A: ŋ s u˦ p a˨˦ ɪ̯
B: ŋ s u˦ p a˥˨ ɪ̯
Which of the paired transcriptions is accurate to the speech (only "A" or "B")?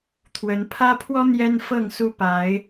A